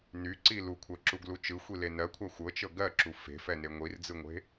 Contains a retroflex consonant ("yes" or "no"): no